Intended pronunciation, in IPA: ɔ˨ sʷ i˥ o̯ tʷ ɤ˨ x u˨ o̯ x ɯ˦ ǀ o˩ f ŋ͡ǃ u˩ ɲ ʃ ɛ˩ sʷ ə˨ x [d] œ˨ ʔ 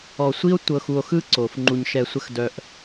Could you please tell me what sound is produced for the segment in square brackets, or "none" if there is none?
d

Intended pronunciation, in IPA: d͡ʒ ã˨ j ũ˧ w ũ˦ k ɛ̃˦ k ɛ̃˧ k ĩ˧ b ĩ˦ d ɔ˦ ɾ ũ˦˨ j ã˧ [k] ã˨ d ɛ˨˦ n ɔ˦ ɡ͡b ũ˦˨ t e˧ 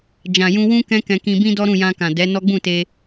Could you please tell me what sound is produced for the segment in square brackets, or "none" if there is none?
k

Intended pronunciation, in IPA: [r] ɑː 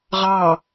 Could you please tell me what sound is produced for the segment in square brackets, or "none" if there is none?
ʁ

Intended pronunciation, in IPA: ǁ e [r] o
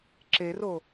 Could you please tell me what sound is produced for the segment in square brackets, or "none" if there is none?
r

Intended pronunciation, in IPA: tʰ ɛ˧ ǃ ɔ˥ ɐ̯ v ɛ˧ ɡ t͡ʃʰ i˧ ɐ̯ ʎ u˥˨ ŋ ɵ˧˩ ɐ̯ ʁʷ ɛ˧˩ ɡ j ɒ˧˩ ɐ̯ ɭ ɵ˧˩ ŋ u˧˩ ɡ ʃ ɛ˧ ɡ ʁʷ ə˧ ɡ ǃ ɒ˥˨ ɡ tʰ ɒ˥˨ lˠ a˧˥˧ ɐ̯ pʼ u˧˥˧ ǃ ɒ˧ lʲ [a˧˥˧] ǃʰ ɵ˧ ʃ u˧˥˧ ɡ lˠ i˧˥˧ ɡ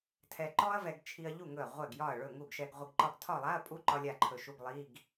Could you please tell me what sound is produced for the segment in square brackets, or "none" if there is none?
a˥˨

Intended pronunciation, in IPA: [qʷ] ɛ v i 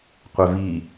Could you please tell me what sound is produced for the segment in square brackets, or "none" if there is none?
qʷ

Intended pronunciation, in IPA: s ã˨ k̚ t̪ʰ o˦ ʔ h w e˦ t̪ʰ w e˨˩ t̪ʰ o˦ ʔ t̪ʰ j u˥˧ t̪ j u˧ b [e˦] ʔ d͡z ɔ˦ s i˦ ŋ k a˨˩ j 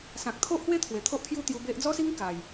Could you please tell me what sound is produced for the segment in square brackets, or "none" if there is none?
e˦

